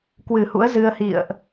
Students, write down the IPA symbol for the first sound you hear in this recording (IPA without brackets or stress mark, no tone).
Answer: k